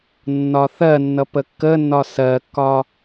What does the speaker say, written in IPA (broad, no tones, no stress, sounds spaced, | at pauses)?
nː ɒ θ ɜ nː ʌ p ə kː ə nː ɒ s ɜ kː ɒ